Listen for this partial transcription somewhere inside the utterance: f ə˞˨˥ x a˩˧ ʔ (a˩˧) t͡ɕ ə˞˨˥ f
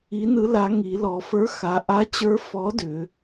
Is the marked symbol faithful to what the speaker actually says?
no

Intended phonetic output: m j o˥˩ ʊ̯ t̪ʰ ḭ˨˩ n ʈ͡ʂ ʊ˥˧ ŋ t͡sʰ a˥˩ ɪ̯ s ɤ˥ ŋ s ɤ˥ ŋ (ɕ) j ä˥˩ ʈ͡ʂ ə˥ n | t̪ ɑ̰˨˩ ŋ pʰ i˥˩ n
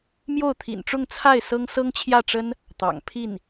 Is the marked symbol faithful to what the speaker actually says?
no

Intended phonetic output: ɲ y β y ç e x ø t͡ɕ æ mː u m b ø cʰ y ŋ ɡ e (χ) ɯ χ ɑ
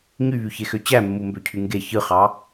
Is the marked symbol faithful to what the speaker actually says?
no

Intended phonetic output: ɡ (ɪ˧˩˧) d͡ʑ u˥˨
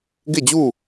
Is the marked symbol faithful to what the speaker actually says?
no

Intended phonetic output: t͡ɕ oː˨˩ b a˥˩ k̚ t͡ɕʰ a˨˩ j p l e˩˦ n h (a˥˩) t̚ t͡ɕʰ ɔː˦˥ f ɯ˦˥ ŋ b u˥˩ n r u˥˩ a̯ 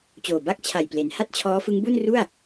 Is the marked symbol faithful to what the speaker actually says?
yes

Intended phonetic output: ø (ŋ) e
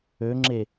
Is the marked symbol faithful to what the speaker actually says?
no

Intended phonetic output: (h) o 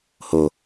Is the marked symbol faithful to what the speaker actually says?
yes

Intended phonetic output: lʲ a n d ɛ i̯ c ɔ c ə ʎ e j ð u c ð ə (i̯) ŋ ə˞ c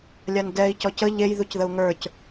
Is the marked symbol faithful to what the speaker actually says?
no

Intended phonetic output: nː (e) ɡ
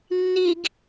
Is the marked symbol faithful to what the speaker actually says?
no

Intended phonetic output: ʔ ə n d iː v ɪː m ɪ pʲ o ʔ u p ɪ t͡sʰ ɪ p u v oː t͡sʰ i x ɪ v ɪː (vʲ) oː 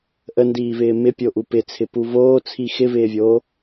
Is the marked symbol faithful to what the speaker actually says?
yes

